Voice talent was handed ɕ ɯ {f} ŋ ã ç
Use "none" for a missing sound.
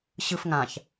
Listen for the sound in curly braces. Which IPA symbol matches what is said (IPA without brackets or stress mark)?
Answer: f